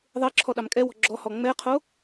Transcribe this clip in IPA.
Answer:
ðˤ e ǁʰ ɔ ɗ ɑ m kʼ ɛ w ɔ̤ ɡ͡ǁ ɔ h ɔ ŋ͡m ɛ qʰ o

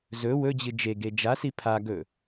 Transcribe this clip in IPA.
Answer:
z ɵ w ɵ d͡ʑ ɨ d͡ʒ e ɡ e d͡ʒ a s i pʰ a ɡ ɵ

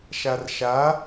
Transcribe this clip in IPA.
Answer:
ʃ a r ʃ a

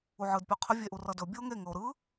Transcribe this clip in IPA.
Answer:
u ʕ ɯ d pʲ u qʰ ə vʲ e ʔ u r ʌ d ɵ bʲ ɯ o̯ ŋ e ŋ ɤ o̯ ɾ ɯ

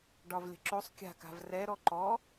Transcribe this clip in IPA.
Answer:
ɖ ɒ v lʲ ə̤ ǁ o sˤ kʲ a̤ k a̤ v r ɛ ɾ ɔ ǃ ɔ

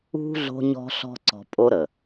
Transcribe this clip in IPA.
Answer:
ṳ˦ ɮ o̤˦ ɲ ɔ̤˦ ɬ ɔ̤˦ ǀ ɔ̤˧ pʼ o˧ ɾ ə˨

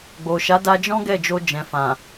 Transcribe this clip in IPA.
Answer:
ɡ͡b o˨ ʃ a˨˦ d a˧ d͡ʒ ɔ̃˦ ɡ ɛ˦˨ d͡ʒ o˧ d͡ʒ ɛ̃˨ f ã˨

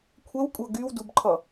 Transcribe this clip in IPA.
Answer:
kʷʰ ɛ w kʷʼ ʌ ɡ y w d u b ǃʰ ʌ

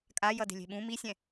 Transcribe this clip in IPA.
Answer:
kʼ a j ʌ d e̤ lʲ e̤ ɓ ũ m i sʲ ɛ̃

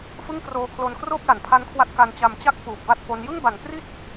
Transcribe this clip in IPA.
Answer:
f ɯ˥˩ ŋ k r oː˧ kʰ l o˧ n k r oː˥˩ p̚ j a˩˦ n pʰ a˦˥ n kʰ w a˦˥ t̚ k a˧ n t͡ɕ a˨˩ m t͡ɕ a˥˩ k̚ p uː˨˩ p̚ b a˥˩ t̚ p o˦˥ n j ɯ˥˩ ŋ b a˨˩ n k r i˥˩ t̚

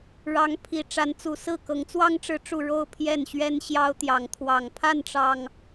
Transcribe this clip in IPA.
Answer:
ɻ ɑ˨˦ ŋ pʰ i˨˩ ʈ͡ʂ a˨˦ n t͡s u˨˩ s ɹ̩˥˨ k ɤ˨˦ ŋ t͡s w ɑ˦ ŋ ʈ͡ʂ ɻ̩˨˦ ʈ͡ʂ u˥˨ ɻ o˥˨ ʊ̯ pʰ j ɛ˥˨ n ɕ ɥ ɛ˦ n ɕ j ɑ˦ ʊ̯ t̪ j ɑ˨˦ ŋ t̪ʰ w ɑ˨˩ ŋ pʰ a˥˨ n ʈ͡ʂ ɑ˨˩ ŋ

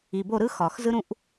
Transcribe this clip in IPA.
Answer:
i˨ b o˦˨ ɾ ɯ˦ x ɒ˨ x z ɯ˦ ɾ ũ˦ ʔ

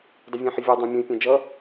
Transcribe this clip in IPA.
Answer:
dˤ ə vʲ ə̃ː ħ ə vʲ ɑ dˤ ɑ̃ mʲ ə̃ ɪ̯ pʲ ɑ̃ d͡ʒ ʌ

